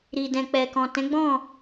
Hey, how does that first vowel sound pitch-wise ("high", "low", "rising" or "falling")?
low